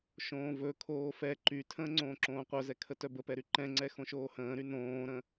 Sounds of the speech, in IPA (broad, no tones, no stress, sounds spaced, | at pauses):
ʃ õː v ɵ kʰ oː f ɛ ǃ y tʰ ə̃ː ŋ͡ǀ õː ǁ õː qʷ œ z ɛ kʰ ə t œ b ə p ɛ ɾ y ǃ ɛ̃ ŋ͡ǀ ɛ x õ ʃ oː h ə̃ː ɾ y n õː ɾ ə̃